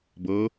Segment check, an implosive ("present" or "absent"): absent